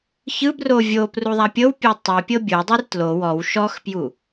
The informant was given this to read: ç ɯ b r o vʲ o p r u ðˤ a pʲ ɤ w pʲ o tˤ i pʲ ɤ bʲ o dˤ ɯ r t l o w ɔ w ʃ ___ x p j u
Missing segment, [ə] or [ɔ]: ɔ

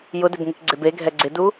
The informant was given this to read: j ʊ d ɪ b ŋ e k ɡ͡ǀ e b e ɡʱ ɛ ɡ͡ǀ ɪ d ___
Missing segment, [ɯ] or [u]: u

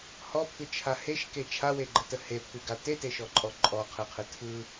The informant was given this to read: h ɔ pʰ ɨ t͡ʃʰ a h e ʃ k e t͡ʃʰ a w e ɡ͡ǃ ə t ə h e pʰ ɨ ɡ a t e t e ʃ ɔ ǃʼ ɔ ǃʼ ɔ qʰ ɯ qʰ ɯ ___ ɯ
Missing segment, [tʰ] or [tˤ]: tʰ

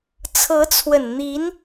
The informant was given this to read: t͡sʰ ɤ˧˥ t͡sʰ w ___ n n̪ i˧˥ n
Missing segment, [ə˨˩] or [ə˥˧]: ə˨˩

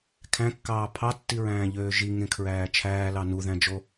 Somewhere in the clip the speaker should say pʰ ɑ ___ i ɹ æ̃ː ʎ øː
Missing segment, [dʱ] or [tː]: tː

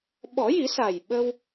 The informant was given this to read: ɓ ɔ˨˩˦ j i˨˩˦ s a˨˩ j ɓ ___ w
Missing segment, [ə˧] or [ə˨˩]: ə˧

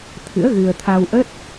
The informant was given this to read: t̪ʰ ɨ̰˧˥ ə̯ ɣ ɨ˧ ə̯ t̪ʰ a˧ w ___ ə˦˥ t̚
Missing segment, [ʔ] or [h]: ʔ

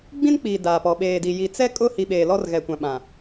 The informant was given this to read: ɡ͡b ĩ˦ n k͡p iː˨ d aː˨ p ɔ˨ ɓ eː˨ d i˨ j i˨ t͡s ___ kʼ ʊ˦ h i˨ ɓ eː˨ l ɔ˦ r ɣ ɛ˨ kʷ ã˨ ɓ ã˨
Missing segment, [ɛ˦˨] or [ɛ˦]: ɛ˦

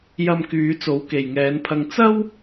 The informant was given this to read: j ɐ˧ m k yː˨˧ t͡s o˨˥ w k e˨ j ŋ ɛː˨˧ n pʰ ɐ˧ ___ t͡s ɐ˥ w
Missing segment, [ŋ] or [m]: ŋ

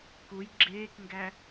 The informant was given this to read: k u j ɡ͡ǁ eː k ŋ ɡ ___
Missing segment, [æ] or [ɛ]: æ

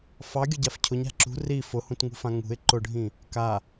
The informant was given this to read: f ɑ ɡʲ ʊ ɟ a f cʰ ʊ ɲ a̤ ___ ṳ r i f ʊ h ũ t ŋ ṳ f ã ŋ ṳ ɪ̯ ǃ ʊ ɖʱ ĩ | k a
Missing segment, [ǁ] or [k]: ǁ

